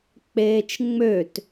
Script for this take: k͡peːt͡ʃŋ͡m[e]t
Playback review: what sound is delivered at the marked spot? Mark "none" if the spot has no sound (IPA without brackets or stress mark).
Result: ø